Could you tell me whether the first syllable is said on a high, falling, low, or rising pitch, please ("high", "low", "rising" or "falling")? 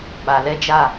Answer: low